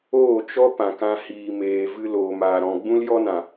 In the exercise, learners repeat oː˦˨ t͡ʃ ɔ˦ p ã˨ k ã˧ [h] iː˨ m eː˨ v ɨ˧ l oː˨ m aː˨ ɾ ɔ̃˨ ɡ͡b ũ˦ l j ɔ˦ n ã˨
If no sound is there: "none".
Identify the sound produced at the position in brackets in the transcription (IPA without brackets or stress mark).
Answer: h